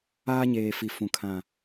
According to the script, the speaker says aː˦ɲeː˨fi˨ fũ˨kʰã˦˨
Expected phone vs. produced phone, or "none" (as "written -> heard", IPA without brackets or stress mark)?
none